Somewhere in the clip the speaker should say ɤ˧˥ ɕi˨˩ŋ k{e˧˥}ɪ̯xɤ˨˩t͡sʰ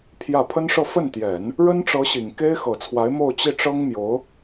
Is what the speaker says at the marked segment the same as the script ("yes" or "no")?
no